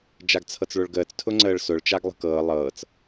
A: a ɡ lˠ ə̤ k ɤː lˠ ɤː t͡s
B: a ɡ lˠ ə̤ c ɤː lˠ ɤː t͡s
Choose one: A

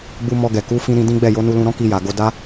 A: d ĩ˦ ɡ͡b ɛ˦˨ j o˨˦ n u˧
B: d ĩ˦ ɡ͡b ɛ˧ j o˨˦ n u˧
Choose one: A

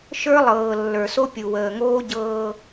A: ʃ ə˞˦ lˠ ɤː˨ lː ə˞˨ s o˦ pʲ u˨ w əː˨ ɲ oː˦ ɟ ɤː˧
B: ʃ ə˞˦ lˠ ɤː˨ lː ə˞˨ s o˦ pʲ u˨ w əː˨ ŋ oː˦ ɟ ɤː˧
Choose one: B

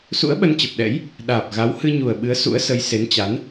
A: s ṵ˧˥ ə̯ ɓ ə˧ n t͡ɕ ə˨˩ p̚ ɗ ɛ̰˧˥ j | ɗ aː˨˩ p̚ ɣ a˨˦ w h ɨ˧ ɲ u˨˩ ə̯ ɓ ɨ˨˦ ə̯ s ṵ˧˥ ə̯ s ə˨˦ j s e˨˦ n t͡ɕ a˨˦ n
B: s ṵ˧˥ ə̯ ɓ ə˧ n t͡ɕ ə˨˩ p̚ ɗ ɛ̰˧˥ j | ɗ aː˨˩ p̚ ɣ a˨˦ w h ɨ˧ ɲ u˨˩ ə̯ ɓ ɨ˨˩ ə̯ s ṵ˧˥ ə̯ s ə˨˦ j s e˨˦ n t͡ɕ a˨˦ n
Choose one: A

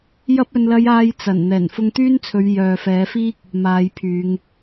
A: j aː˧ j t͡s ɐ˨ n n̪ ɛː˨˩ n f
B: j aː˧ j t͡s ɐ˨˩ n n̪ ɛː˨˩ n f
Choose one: B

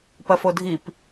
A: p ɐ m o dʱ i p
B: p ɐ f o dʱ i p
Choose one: B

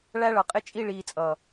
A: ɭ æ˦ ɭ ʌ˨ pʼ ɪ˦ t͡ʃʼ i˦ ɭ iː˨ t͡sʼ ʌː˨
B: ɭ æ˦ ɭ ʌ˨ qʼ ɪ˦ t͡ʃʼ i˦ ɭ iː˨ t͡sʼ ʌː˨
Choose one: B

